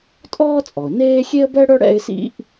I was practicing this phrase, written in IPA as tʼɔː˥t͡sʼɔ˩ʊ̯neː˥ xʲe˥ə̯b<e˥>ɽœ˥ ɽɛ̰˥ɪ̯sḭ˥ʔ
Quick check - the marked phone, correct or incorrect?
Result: incorrect